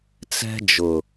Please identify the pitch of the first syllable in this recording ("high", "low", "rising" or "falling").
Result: high